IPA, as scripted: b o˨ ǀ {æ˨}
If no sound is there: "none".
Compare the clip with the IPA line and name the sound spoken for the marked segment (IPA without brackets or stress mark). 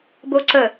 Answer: ə˨